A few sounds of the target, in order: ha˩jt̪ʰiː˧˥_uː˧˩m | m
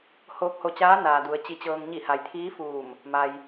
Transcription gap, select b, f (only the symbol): f